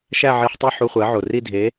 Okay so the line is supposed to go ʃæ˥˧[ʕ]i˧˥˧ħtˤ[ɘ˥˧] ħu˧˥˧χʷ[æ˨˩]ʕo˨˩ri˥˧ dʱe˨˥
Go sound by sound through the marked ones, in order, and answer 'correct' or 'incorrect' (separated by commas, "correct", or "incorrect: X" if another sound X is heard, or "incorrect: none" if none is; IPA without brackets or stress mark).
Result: correct, incorrect: e˥˧, incorrect: æ˨˥